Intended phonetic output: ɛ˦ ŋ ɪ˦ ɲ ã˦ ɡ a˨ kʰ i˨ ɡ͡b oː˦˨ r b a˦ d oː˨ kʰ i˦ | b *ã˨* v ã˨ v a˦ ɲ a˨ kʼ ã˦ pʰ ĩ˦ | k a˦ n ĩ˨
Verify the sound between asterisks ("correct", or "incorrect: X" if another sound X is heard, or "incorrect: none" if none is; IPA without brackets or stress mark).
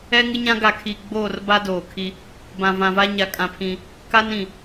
correct